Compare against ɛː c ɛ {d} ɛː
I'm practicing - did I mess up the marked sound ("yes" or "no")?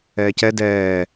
no